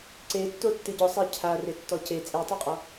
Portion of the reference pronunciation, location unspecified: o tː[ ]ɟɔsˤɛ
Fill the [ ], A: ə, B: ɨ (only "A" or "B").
B